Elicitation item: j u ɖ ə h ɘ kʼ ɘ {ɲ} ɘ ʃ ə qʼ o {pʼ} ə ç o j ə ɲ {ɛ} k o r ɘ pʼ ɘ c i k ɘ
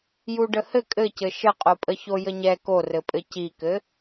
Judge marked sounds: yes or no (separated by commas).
no, yes, yes